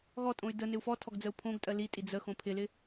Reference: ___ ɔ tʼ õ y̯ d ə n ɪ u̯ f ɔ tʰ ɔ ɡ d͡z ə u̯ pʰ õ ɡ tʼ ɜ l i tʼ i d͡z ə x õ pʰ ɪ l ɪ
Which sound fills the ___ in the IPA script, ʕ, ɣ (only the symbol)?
ɣ